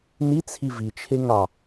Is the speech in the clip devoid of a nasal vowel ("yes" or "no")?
yes